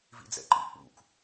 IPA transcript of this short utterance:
v ḭ d͡z ɛ̰ ǃ ḭ k͡p ṵ k

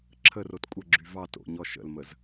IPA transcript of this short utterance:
ǁʰ ə r o t kʷʼ ə ɡ͡ǁ y v ɑ t o̰ ɲ ɔ ʃ ə̰ l m ə z

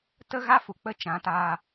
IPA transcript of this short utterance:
t ə˦ ɣ a˦ f u˨ k͡p ə˧ t͡ʃ ã˨˦ t aː˧

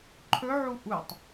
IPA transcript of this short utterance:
ǃʰ ɵ ʕ u ʔ u tˤ

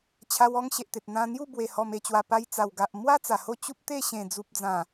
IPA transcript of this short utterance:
t͡ɕʰ a˧ w ɔ˦ ŋ ɕ e˨ ʔ t̪ e˨ t̚ n̪ ã˧ n̪ j u˥˧ b w e˨˩ h ɔ˨˩ m e˨˩ t͡ɕ w a˨˩ p a˧ j t͡s a˨˩ w ɡ a˨ ʔ m w a˦ t͡s a˨˩ h o˥˧ t͡ɕ u˦ p̚ t̪ e˥˧ ɕ ẽ˨˩ d͡z u˨ p̚ d͡z ã˨˩

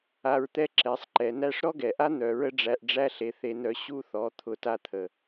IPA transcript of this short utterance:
a˧ ɹ t̪ ɛ˦ ǁ ɛ˨ sˤ ǃ ɛ˨ n æ˧ ʂ ɾ ɔ˦ ɡ ɛ˨ ʔ a˦ n̪ œ˧ ɹ ə˦ ɖ͡ʐ æ˧ ʔ ɖ͡ʐ æ˦ ɬ e˧ θ e˧ n œ˧ ɕ u˧ θ ɔ˨˦ t̪ʰ ʊ˧ t a˧ t̪ʰ ə˨

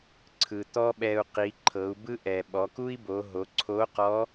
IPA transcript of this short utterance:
ǀʰ ɯ˩ t̪ ɔ˥ ɓ ɛ˧ u̯ q i˩˧ ǃʰ ɤ˩˧ u̯ b ɯ˥ ʔ ɛ˩ ɓ ɔ˩˧ k u˥ i̯ b o˩˧ ɦ o˩˧ ǀʰ o˧˥ q ɔ˧˥

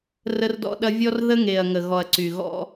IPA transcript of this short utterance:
r ə˦ r d ɔ̰˦ ɗ ɐ˦ vʲ ɔ˦ r ð ə˦ ŋ e˨ ɐ̯ ŋ ə˨ ɣ ɔ˨ ɐ̯ ǀ y˨ ɣ ɔ̰˦

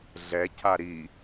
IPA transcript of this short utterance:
ɮ ɛ cʰ a ɾ i

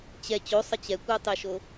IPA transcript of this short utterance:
t͡ɕ ɛ t͡ɕ o sˤ ə t͡ɕ ɛ kʷ ə ʊ̯ tˤ e ʃ o

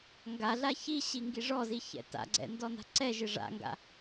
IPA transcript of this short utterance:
ŋ ɡ a ɮ a ç i ɕ i ŋ ɡ i ʐ ɔ z i ç ɛ̰ t a̰ ɡ͡ǀ ɛ̰ n d ɔ n a̤ ǀ ɛ ʒ ɪ ʐ a̰ ŋ ɡ a̰

